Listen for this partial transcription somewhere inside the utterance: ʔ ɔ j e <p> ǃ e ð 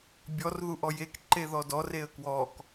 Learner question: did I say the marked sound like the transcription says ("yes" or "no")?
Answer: no